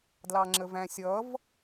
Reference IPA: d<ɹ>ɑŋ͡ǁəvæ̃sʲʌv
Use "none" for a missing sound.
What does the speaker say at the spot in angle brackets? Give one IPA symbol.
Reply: l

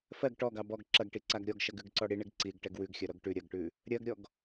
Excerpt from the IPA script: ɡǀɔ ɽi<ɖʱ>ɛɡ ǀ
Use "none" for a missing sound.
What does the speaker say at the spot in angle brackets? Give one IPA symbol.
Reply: ɳ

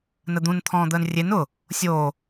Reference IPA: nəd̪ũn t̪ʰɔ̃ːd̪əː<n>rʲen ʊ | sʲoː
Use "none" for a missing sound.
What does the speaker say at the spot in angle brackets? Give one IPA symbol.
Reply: n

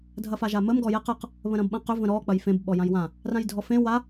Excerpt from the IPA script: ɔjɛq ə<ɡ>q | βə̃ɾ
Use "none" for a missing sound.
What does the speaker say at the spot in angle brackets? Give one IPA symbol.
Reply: none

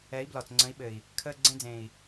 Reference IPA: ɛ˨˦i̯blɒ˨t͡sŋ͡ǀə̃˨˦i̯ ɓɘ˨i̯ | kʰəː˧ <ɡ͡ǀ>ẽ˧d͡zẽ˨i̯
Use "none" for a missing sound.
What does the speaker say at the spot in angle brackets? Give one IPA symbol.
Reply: ɡ͡ǀ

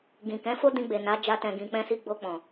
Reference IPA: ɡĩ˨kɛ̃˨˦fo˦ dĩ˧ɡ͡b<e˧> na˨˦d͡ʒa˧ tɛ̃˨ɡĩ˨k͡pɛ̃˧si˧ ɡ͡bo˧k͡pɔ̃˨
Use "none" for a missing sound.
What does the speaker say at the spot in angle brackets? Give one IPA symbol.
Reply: e˨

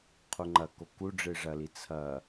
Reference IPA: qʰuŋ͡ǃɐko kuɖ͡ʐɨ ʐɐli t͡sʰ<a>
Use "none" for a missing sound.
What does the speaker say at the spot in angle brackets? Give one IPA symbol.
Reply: ɐ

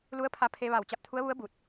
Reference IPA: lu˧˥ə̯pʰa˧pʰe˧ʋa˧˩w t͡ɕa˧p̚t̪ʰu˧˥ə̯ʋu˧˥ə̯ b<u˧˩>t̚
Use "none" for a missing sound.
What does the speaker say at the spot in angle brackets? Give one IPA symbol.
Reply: u˧˩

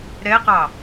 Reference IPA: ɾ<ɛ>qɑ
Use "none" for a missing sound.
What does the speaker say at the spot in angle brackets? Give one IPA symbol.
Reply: ɛ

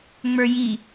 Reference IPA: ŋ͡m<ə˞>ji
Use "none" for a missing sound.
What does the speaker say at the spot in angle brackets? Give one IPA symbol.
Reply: ə˞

